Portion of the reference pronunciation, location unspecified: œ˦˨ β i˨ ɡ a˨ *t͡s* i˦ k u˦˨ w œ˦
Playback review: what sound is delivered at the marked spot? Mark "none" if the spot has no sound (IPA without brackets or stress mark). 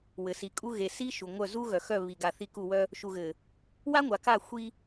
θ